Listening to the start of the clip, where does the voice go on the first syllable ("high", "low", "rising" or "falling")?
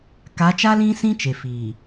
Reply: rising